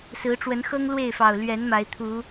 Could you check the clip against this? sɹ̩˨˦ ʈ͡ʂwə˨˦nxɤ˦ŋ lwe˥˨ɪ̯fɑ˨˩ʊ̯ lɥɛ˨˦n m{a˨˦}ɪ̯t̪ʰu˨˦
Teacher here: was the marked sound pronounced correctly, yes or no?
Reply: yes